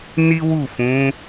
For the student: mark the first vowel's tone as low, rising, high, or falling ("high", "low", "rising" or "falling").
high